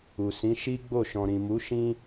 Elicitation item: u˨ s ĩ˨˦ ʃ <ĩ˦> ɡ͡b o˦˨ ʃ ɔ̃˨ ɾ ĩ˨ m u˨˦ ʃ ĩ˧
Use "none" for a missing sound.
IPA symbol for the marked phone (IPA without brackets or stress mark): i˦